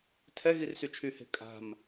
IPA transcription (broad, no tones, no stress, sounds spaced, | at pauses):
tʰ ɛ ɣ i r s y t͡ʃʰ y h e̤ kʼ a̤ m